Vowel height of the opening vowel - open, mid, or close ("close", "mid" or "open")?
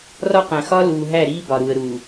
open